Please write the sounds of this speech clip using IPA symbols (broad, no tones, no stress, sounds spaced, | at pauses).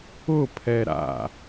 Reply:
ʊ pʰ ɛ ɾ a̰